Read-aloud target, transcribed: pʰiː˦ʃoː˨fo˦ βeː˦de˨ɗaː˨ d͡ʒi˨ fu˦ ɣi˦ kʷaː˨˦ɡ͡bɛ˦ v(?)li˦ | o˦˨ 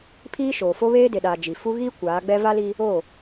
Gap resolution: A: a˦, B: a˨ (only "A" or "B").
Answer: A